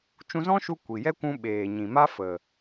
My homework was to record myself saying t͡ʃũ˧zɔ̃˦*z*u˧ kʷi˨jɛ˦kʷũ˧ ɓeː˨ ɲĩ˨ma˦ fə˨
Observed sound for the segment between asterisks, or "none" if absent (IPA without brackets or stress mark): ʃ